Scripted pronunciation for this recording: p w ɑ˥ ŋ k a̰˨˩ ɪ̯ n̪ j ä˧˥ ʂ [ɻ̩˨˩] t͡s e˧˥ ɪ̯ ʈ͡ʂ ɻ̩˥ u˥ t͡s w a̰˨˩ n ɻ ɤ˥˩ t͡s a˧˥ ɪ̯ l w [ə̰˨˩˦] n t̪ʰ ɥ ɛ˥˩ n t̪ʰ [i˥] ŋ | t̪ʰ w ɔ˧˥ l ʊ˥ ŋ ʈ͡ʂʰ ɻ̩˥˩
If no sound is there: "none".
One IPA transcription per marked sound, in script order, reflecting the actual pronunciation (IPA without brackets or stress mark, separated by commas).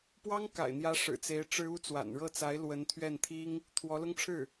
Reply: ɻ̩˨˩, ə˧˥, i˥